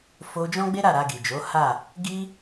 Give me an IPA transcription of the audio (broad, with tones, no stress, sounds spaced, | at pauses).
f o˧ d͡ʒ ɔ̃˦ ɡ͡b e˦ ɾ a˦˨ ɾ a˧ ɡ i˨ d͡ʒ o˨˦ h a˦˨ | ɡ i˦